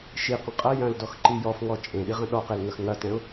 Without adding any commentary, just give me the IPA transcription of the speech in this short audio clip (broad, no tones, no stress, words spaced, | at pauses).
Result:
ʃiqə̃ qʼɐ jɐ̃ldɔxǃi jɔfŋɔ t͡ʃʼẽɗiʁə̃ ɗɔqelŋɐx ŋɐtɛ̃ʊ̯